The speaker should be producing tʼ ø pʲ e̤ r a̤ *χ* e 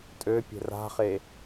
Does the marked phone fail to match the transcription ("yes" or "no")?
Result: no